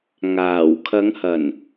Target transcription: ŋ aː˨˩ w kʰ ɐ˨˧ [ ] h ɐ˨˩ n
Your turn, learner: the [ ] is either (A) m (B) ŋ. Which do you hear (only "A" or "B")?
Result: B